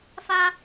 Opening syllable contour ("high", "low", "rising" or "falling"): high